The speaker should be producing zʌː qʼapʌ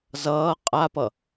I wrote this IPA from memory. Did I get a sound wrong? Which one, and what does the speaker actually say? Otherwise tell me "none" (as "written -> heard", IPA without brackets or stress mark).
none